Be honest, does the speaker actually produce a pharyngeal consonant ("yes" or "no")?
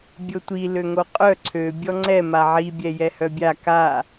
yes